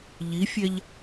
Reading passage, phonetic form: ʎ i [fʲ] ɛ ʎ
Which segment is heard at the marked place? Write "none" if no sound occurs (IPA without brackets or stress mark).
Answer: fʲ